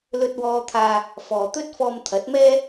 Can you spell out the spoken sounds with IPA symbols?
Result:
l ɵ˧ t̚ w ɔː˧ t̪ʰ aː˧ | f ɔː˨ t̪ ɵ˥ t̚ f ɔː˧ m t̪ʰ ɐ˨˥ t̚ m ɛː˥

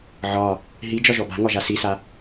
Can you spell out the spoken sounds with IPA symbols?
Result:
ʕ ɒ | ɦ i d͡ʒ ɒ ʒ ɔ b a̤ ŋ ɒ ʒ a s i s a

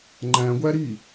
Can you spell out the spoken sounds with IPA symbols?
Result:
ŋ͡ǃ æ̃ ɡʷ æ ɾ i

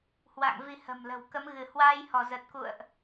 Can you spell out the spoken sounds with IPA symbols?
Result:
h w a̰˧˨ ŋ v i˧ h ə̤˨˩ m l ə̤˨˩ w k ə˨˦ m ɣ ɨ˧˩ h w aː˧ j h ɔ˧˩ z ə˨˩ t̚ k ṵ˧˨ ə̯ ʔ

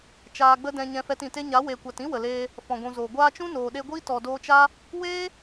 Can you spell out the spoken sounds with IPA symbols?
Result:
t͡ʃ aː˧ ɡ͡b ə˦ d ɛ̃˧ ɲ ɛ̃˧ f ɛ˧ t ĩ˨ t e˦ ɲ a˨˦ w eː˨ kʷ a˨ t ĩ˦ w ə˨ l eː˧ | f ɔ̃˨ ɡʷ ũ˨ z oː˨ ɡʷ aː˧ t͡ʃ ũ˦ n oː˨ ɗ e˧ ɡʷ iː˦ t ɔ˨ d oː˧ t͡ʃ a˦ | w eː˦

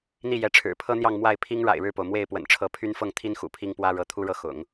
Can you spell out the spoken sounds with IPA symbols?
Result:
n̪ i˥˩ j ɛ˧˥ ʈ͡ʂʰ ɻ̩˨˩ pʰ ɤ˥ n̪ j ɑ˥˧ ŋ m w a˥˩ ɪ̯ pʰ i˥ ŋ ɻ a̰˨˩ ɪ̯ ɻ ɻ̩˥˩ p o˩ ʊ̯ m w e˥˩ ɪ̯ p w ə̰˨˩ n ʈ͡ʂʰ ɤ˧˥ pʰ y˥ n f ɤ˥˩ ŋ t̪ʰ i˥ n x ṵ˨˩ pʰ i˥ ŋ p w ä˥ ɻ ɤ˧˥ t̪ʰ u˥ ɻ ɤ˥˩ x ʊ̰˨˩˦ ŋ

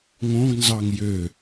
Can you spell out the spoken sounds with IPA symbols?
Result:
ŋ õ ɡ n z ɑ ŋ j ø

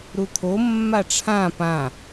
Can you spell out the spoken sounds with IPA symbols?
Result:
ɾ u t̪ʰ o mː a ʈ͡ʂʰ ã p ã

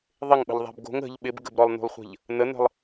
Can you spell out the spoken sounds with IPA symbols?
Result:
ðˤ ɪ ŋ ɓ ə̤ ʎ ðˤ æ̤ b ɡ o̤ ŋ ə̤ ʎ ɓ ɪ b ɡ ə̤ b ɾ ɔ lˠ n ṳ lˠ χʷ ə̤ ʎ | n ə n ə̤ lˠ

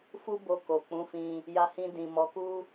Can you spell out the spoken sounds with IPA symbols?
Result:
f u˦ b o˧ k o˨ k͡p ũ˨˦ f ĩ˧ | j a˧ h ĩ˧ d ĩ˨ m ɔ˨˦ k u˦

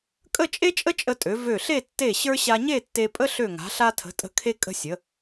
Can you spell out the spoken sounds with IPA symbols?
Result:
kʼ ə˥˧ t͡ʃʼ e˥ t͡ʃʼ ə˥ t͡ʃʼ ə˧ tʼ ø˩˧ v ø˧˩ ɬ e˥˧ tː e˧˩ ɕ ə˞˧ ɕ a˧ ɲ e˥˧ tː e˧ pʼ ə˥ ɬ ø˧˩ ŋ a̤˩˧ ɬ a˧ tʰ ə̤˩˧ tʼ ə̤˧˩ kʰ e˧ kʼ ə̤˧ sʲ ə˩˧

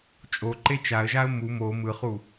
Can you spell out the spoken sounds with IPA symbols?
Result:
t͡ʃʼ o ǃ e t͡ʃ a ə̯ ʒ a ə̯ m u m o m ɯ χ u

